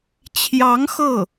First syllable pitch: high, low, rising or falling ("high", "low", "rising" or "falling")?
rising